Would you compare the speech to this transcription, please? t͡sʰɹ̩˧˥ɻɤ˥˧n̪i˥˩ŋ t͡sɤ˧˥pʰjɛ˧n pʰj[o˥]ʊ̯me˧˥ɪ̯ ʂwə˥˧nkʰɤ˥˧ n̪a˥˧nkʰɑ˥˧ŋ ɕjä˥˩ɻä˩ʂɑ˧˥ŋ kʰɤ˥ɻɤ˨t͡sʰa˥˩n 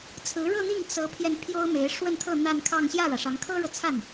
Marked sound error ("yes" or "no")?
no